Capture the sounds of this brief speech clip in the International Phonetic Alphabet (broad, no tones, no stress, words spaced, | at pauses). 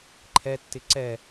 ǃʰɛtːɪ ǀɛ